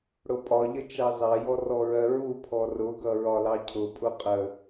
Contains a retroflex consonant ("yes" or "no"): yes